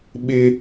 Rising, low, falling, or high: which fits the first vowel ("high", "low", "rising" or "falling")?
high